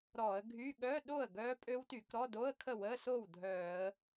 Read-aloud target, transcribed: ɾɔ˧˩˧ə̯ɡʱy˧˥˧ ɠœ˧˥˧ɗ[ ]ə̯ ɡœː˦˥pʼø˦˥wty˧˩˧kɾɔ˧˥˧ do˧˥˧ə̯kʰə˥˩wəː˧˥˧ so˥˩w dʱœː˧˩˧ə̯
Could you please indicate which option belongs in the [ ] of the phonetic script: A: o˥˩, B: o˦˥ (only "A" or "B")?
A